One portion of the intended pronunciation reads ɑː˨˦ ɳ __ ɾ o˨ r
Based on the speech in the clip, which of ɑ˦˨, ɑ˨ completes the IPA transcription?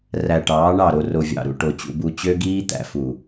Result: ɑ˦˨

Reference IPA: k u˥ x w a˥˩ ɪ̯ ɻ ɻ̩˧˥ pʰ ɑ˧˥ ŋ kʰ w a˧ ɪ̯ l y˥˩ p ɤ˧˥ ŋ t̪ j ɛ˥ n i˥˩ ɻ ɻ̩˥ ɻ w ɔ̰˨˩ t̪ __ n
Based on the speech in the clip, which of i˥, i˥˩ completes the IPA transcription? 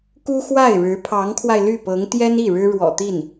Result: i˥˩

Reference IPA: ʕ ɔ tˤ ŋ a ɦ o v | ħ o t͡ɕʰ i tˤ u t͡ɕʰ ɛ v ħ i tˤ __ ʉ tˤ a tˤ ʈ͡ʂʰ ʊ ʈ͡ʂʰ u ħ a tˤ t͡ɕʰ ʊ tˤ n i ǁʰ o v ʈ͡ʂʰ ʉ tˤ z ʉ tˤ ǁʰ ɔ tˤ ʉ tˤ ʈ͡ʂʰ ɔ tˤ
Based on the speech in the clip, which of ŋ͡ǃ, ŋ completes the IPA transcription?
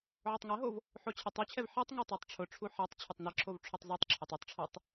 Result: ŋ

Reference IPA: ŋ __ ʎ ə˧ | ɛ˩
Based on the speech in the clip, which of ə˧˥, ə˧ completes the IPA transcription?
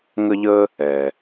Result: ə˧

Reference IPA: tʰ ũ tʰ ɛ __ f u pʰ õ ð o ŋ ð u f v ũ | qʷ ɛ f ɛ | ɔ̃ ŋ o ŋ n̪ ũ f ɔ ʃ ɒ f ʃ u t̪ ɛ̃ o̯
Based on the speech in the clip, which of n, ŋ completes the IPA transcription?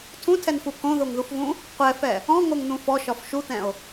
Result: n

